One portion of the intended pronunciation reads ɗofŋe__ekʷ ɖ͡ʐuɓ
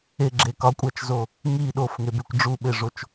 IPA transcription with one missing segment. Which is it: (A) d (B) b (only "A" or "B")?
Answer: B